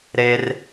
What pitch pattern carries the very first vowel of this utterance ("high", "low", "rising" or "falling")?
high